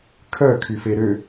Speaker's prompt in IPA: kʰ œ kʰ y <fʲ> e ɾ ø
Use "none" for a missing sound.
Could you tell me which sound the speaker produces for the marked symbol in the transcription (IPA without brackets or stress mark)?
f